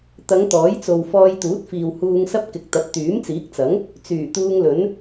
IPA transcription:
t̪ ɐ˨˧ ŋ t̪ ɔː˨˥ j t͡s o˨ w f ɔː˧ j t̪ uː˨˥ t̚ f iː˨ w h uː˧ ŋ s ɐ˥ p̚ k ɪ˨ k̚ t̪ ɐ˨˥ p̚ t̪ yː˨˥ m t͡s iː˨˥ k̚ t͡s ɐ˨˥ ŋ | t͡s yː˨˩ t̪ uː˧ ŋ l ɵ˨˥ n

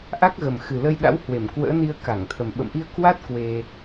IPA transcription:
ʔ a˦˥ k̚ ɣ ə˨˩ m x ɨ˨˩ l ə˧ j ɗ a̰˧˥ w h w e˧˩ m k w ə̰ː˧˥ n i˧ ə̯ k a˧˩ ŋ t̪ʰ ə˨˩ m ɓ ə̰˧˨ m ʔ i˧ ə̯ k w a˦˥ t̚ k w e˧

